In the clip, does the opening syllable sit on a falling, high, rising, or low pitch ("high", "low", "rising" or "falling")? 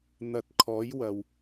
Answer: rising